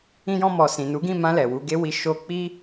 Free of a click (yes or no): yes